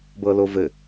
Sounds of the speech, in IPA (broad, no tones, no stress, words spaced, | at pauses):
bɤlovɘ